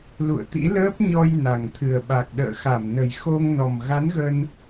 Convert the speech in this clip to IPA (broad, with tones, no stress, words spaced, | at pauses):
lṵ˧˨ə̯t̪ḭ˧˥ ləː˦˥p̚ɲɔ˧j na˨˩ŋt̪ʰɨ˨˩ə̯ ɓa˨˩k̚ɗə̰ː˧˨xa˧˩mnə˨˩j xo˧ŋnɔ˨˩m ɣa˨˦n ɣə˧n